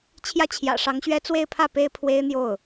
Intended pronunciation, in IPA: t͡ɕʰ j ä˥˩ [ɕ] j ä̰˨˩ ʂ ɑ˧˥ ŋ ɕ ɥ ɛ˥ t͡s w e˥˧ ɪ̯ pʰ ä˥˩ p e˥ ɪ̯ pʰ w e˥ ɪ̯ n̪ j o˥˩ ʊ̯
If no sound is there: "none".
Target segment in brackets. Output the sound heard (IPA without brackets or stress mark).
t͡ɕʰ